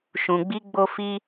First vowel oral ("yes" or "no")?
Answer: no